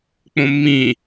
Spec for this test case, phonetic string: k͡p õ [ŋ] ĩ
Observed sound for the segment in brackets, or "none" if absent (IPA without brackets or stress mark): mː